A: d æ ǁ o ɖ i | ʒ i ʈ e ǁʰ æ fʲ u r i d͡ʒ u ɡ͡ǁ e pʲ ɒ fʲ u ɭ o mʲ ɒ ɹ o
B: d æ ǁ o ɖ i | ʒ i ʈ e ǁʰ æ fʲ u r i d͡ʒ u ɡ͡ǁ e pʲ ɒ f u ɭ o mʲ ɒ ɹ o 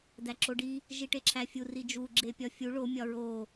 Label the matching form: A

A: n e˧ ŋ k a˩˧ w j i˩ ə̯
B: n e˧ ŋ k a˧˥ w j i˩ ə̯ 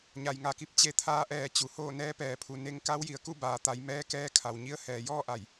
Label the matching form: B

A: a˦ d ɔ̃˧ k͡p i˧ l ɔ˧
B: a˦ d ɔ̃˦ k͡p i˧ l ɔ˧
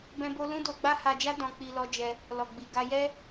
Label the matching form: A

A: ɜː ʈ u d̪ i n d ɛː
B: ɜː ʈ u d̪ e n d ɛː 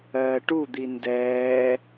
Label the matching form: A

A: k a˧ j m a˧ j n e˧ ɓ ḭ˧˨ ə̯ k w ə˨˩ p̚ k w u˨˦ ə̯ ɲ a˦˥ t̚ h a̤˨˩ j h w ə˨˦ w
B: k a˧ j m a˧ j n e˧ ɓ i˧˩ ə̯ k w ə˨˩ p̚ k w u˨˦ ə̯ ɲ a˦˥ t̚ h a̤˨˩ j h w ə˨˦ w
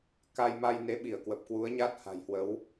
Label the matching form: B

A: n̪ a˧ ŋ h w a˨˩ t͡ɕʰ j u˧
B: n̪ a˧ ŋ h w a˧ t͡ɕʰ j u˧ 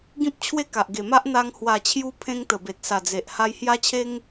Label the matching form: A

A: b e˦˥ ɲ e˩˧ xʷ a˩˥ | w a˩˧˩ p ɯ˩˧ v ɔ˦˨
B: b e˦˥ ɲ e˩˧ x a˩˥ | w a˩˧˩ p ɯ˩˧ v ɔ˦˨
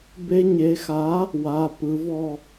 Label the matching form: B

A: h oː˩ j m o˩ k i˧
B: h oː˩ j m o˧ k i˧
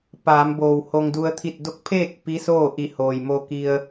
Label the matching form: B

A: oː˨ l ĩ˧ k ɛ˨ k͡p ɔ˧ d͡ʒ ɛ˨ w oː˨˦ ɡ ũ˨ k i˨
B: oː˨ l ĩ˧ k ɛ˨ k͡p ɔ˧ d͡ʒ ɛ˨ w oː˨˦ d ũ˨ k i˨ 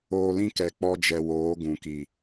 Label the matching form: A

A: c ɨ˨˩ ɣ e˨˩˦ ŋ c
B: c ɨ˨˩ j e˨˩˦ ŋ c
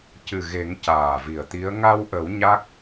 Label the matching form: A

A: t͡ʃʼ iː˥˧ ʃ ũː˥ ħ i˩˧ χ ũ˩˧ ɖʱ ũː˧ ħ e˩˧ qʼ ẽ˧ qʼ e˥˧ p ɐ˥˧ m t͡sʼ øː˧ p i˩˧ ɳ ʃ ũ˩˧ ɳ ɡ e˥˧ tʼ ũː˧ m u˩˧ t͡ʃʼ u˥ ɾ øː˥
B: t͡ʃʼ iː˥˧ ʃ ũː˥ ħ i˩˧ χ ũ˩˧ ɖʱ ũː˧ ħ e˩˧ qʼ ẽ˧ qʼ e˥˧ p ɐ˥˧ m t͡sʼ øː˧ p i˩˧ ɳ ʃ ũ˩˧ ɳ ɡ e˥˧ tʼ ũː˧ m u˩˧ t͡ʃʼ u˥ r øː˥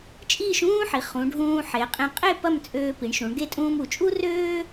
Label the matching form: B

